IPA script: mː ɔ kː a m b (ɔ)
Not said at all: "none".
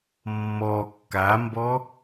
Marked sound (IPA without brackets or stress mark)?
ɔ